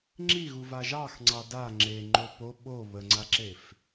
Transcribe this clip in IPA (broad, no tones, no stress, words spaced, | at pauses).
ŋ͡ǁiɣu vaʒɑx ŋ͡ǀɑda ŋ͡ǁeŋ͡ǃo po ɓo βəŋ͡ǀaǁef